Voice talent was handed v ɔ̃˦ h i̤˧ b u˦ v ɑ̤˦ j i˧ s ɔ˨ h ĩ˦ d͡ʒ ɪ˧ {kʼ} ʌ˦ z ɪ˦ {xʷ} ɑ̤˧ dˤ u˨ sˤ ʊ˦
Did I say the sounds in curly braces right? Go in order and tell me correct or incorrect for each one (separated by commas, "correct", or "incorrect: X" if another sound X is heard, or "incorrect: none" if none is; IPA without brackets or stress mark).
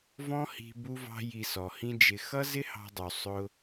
incorrect: x, incorrect: h